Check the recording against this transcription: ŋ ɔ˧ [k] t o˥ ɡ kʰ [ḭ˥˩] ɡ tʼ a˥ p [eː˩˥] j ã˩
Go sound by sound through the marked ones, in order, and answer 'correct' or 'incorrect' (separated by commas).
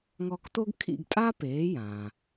correct, correct, correct